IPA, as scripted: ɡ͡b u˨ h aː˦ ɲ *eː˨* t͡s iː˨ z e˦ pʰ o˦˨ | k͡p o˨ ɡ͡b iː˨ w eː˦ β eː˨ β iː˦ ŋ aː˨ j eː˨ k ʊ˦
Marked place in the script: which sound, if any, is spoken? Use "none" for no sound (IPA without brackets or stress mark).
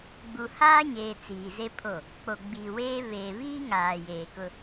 eː˨